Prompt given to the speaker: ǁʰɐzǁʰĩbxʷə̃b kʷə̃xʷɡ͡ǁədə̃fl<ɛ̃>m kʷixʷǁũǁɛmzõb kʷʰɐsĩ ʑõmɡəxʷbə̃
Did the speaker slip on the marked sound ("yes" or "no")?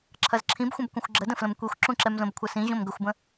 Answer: yes